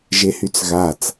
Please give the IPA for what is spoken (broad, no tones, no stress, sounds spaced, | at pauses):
ʒ e h y t͡s ɣ a t͡s